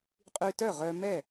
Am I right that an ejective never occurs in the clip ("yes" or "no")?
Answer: no